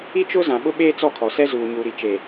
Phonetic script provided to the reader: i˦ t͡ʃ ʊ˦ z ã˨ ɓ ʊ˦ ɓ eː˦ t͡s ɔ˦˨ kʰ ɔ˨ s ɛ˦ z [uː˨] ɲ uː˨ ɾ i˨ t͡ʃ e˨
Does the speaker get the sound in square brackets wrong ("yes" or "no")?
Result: no